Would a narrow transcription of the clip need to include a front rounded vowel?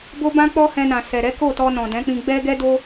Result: no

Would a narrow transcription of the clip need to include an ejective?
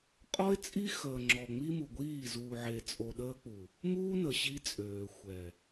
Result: yes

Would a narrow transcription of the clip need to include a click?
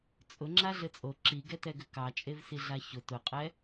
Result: yes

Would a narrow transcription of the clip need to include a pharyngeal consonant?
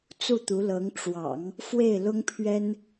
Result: no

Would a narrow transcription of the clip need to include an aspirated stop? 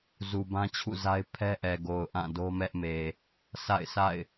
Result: yes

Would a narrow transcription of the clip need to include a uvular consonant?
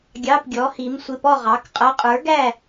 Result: yes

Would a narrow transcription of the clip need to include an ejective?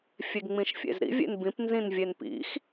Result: no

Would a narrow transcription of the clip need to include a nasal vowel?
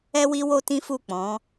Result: yes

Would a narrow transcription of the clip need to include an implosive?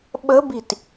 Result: yes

